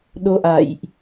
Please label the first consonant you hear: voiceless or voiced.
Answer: voiced